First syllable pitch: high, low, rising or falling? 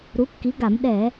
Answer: rising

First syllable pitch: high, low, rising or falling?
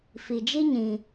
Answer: low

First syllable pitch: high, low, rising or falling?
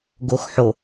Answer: low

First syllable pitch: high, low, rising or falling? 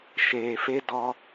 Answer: low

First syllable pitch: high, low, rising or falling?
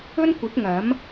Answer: high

